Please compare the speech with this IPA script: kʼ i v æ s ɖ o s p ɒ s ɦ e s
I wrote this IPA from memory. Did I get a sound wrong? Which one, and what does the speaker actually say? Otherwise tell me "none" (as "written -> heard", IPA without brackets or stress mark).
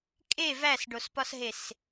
i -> e